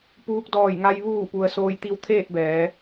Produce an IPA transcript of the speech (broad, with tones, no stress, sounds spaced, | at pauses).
p uː˧ k̚ d ɔː˧˩ j ŋ a˧ j ʋ uː˧˩ p u˩ ə̯ s oː˧ j t̪ i˧ w t̪ʰ eː˥˨ t̚ b ɛː˩˧